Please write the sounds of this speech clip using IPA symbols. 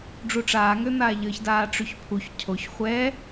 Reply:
ɖ͡ʐuʈ͡ʂaːŋøn̪aː ʎəːçdaːʈ͡ʂyçpʰuç cʰoç χʷɛ

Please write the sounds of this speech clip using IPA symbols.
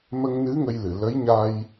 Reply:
mə˧ŋnɨ˧˥ ŋə˧jlɨ˨˩˨ lə˧˥jɲa˧j

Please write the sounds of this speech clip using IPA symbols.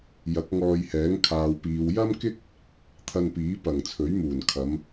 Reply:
jɐ˨˥k̚ŋɔː˧jhɛː˨˥ŋ kʰaː˨wpiː˨w jɐ˥mkɪ˥k̚ | t̪ʰɐ˧npiː˨˥ pɐ˨˩ŋ t͡sʰɵ˨˥ɥmuː˨˩n kʰɐ˨˧m

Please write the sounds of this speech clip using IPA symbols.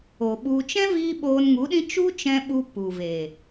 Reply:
o˨ɓu˧ t͡ʃɛ̃˦viː˧ ɓoː˧nŋu˨˦ɗĩ˦ t͡ʃu˦t͡ʃɛ̃˧ ɓu˧ pu˨ve˨

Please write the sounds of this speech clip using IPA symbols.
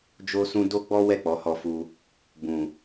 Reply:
d͡ʒo˦sũ˦ do˦ɡ͡bɔ˦wɛ˦˨ k͡pɔ˨˦hɔ˧fu˧ | bũ˨

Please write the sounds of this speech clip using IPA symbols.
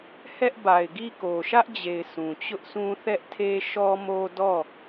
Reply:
hɛ˦ʔba˨ɪ̯ ɡi˦˨ ko˨ʃä˦ʔd͡ʑe˨ɪ̯ sũ˨t͡ɕʊ˦ʔsũ˦ θɛ˦ʔtʰe˦ ʃɔ˦mo˦ dɔ˦˨

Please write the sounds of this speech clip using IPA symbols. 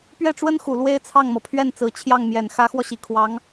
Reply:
pɥɛ˥˩ʈ͡ʂwə˥nxu˨˩ lwe˥ɪ̯t͡sʰɑ˥˩ŋmɤ˩ pʰɥɛ˥˩nt͡sɹ̩˨˩ t͡ɕʰjɑ˥˩ŋmjɛ˨˩n xä˧˥xwɔ˧ɕi˨˩kʰwɑ˧˥ŋ

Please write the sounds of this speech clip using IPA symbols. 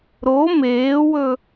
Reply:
ɾo meːwɵ

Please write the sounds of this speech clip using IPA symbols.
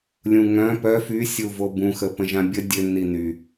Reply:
lʲũŋœ̃ pœ fy sʲuvobũxə pə̃ʒãbʲə dʲø niny

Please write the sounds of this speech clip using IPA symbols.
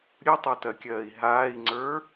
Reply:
ɾʲɯtˤotɜkʲɜːi̯ ɦaːi̯ŋ͡ǀə˞

